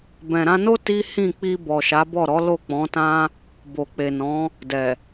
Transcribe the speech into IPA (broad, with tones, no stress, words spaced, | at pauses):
bɛ̃˨ɾã˧no˦ ti˦ hĩ˦˨k͡pi˧bɔ˨ ʃa˨˦bɔ˦˨ɾɔ˨˦ lo˦˨k͡pɔ̃˨˦tã˦ | bo˨k͡pe˨nɔ̃˨˦ | dɛ˨